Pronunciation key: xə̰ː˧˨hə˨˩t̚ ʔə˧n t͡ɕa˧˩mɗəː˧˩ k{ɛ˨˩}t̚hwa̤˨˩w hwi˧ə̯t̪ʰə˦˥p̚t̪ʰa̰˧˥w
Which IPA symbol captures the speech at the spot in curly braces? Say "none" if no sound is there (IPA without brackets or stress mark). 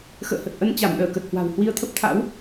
ə˨˩